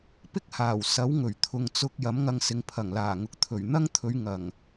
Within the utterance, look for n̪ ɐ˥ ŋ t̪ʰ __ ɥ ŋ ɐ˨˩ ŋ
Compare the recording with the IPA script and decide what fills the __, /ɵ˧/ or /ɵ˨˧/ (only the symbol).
ɵ˨˧